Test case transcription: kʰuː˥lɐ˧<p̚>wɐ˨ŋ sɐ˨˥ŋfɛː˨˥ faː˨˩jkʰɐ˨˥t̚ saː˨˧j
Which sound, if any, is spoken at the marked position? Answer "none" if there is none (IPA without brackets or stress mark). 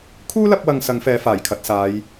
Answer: p̚